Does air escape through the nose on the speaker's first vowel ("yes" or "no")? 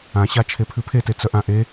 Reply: yes